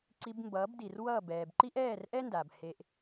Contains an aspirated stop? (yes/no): no